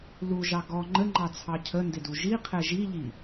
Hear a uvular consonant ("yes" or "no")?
yes